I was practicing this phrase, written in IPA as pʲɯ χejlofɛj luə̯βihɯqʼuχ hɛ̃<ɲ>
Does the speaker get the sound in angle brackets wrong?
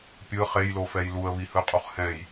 yes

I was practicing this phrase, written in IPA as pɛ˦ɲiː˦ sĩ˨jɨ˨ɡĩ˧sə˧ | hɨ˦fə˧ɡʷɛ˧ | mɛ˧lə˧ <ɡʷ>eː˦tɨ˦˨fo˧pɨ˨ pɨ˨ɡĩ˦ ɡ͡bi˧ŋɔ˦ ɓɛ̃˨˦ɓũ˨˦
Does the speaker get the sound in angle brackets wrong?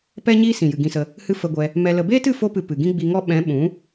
yes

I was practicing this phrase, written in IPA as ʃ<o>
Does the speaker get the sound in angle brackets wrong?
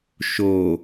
no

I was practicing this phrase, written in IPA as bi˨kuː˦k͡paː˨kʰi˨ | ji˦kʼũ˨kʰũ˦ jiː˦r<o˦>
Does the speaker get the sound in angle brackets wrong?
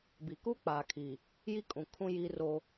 no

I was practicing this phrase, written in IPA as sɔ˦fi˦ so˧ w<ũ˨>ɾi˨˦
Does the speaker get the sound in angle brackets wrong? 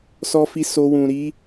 no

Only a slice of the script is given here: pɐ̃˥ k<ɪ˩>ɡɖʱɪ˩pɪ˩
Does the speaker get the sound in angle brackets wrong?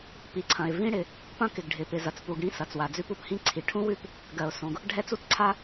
no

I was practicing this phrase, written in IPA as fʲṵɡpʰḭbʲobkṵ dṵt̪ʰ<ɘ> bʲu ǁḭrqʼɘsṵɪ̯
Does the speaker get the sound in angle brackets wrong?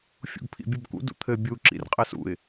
no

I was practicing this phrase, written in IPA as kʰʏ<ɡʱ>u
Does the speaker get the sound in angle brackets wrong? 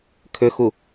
yes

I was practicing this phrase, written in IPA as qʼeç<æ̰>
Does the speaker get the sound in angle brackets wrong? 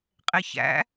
no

